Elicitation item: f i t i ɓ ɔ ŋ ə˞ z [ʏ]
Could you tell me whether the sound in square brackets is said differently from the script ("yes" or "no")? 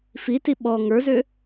no